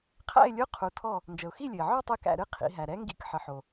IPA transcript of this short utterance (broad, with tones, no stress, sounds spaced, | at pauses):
qʰ æ̰˥˨ ɪ̯ lʲ u˧˥˧ qʰ u˩˧ tʰ ɔ˧˩ | n d͡ʒ ə˩ ʊ̯ x i˥˨ lʲ ɨ˩ ɪ̯ ʕ ɔ˥˨ tˤ ɨ˧˩ k æ̰˧˩ ɾ ɨ˧˥ qʰ ḭ˩˧ ɦ æ˩ ɾ ɛ˧˥ ŋ ɡ ḭ˧˥˧ k ħ ə˩˧ ħ o˩